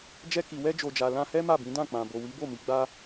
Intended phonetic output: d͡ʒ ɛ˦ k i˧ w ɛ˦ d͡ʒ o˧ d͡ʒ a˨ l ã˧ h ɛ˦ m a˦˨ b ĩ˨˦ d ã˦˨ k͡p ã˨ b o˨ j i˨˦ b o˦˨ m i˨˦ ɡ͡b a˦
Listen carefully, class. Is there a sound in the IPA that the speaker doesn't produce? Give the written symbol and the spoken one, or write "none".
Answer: j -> w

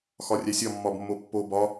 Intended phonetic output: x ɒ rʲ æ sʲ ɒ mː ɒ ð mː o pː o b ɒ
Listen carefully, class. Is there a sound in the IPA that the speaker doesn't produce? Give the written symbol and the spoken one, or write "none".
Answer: ð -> b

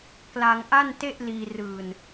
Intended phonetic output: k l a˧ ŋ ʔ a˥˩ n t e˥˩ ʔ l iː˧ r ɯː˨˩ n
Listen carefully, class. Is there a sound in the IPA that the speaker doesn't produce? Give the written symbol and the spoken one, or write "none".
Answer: none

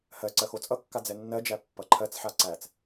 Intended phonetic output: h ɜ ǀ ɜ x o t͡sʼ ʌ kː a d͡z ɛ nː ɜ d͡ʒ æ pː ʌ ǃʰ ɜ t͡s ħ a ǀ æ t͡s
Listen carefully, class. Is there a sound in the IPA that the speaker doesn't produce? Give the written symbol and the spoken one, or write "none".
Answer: none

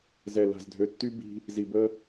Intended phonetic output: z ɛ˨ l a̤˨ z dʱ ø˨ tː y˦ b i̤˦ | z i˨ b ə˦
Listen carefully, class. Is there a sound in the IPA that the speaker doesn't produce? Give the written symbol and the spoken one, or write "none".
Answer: none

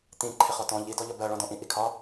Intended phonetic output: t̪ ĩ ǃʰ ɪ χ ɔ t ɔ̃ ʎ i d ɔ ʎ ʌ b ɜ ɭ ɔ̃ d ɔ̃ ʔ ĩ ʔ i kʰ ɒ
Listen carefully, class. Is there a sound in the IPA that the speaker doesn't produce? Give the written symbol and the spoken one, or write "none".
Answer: none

